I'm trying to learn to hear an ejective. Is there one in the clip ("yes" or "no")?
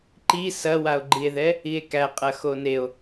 yes